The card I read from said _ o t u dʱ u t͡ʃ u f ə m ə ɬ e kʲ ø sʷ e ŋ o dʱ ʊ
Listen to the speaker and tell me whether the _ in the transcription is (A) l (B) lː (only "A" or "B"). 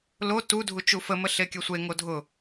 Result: A